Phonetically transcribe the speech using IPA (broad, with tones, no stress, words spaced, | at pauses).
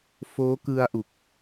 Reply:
foː˦˥kɯ˧a̯ʔu˨˩k̚